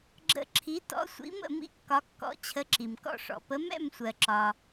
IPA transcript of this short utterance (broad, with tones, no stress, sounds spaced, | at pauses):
ɡ͡ǁ ə̰˥˩ ǁʰ i˨˥ t ɔ̰˨˥ sʷ ḭ˨˥ m ə̰˥˩ m ḭ˥˩ kː ɒ˨˥ kː ɔ̰˨˥ t͡ɕʰ ə˨˥ ǁ i˩ m k ɔ̰˥˩ ʂ ɔ̰˩ p ə˨˥ m ɛ̰˥˩ m sʷ ɜ˩ ǁ ɒ˩